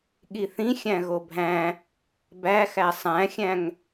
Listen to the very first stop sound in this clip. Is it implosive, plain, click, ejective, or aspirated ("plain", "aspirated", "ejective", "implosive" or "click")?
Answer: implosive